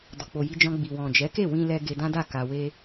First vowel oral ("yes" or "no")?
yes